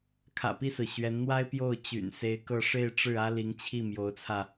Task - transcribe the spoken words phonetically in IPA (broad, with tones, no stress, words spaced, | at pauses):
kʰä̰˨˩pi˥˩sɹ̩˩ ɕɥɛ˧˥nn̪wa˥ɪ̯pjo˥˩ʊ̯ t͡ɕy̰˨˩nse˧˥ɪ̯kɤ˥˧ ʂe˥˧ɪ̯ʈ͡ʂɻ̩˥˩ ä˥ li˧˥ŋt͡ɕʰi˥˩ mjo˧˥ʊ̯t͡sʰä˧